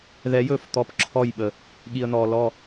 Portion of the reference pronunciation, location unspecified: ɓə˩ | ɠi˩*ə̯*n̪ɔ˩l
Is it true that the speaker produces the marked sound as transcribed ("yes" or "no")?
yes